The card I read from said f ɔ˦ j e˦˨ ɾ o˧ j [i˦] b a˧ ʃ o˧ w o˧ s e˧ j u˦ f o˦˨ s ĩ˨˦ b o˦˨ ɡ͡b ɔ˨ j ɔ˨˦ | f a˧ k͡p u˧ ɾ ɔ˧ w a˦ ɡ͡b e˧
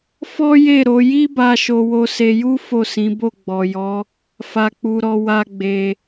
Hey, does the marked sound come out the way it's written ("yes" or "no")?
yes